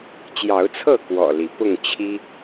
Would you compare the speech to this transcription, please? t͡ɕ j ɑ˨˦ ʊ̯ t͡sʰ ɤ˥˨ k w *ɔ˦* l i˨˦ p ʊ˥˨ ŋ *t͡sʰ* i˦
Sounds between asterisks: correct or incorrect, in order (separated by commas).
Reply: incorrect, incorrect